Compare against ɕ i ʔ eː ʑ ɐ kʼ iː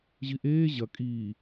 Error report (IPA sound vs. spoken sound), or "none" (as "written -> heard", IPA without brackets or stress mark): ɕ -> ʑ